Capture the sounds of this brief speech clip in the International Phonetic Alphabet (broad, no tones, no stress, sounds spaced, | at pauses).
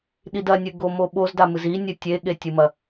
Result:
ɗ i d ɐ nʲ ɨ ɡ o m o ɓ o z d a m ɨ z i nʲ ɨ tʲ e ɠ e tʲ ɨ m ɐ